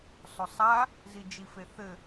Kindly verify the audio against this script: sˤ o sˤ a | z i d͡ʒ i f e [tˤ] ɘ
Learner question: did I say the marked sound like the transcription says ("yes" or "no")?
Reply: no